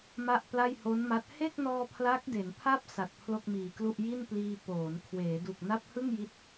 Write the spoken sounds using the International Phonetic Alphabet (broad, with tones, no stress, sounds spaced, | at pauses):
m a˥˩ ʔ p l a˥˩ j h o˦˥ n m a˦˥ t̚ h e˥˩ k̚ n ɔː˧ pʰ l a˦˥ k̚ d e˩˦ n pʰ a˥˩ p̚ s a˨˩ t̚ pʰ l o˥˩ k̚ m iː˨˩ k l u˥˩ ʔ j i˥˩ n p l iː˧ p oː˩˦ n kʰ w eː˩˦ d u˨˩ k̚ n a˦˥ p̚ h ɯ˥˩ ŋ j i˦˥ t̚